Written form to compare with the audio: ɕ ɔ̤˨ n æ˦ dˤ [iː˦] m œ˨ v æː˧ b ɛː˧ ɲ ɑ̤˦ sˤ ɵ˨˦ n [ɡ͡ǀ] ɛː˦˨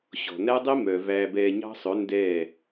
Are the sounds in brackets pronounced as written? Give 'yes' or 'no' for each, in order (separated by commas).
no, no